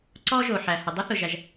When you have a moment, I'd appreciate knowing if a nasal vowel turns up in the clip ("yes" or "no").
no